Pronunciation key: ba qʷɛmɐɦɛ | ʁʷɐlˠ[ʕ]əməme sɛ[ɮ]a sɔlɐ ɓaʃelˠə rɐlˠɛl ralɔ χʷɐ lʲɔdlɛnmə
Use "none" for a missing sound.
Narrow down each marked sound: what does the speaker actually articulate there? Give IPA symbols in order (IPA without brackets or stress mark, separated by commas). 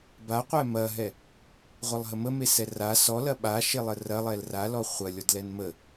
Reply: ɦ, r